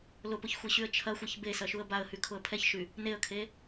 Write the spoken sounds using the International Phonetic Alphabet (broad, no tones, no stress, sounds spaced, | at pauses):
l ʊ p ʊ ç xʷ e ɕ y ə̯ t͡ʃʰ ɐ xʷ ɛ ç b e s ɐ ʃ u ə̯ b a ə̯ h y kʰ ʊ ə̯ pʰ ɛ ç ʃ y | n e ə̯ kʰ e